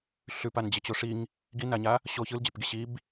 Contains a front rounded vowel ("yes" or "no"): no